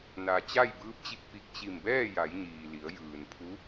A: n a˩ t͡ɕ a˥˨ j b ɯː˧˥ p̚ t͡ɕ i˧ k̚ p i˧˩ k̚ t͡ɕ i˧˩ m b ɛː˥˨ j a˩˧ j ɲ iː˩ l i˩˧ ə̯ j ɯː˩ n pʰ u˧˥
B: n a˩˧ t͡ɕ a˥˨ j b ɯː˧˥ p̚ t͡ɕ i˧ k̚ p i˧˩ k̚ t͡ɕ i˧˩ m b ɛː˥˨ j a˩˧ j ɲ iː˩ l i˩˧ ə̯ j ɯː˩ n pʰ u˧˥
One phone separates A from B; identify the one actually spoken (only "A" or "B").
A